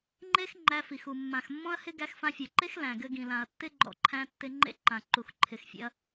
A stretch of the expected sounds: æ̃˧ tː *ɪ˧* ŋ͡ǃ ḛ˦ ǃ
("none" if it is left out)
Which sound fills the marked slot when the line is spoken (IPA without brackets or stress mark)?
ɪ˧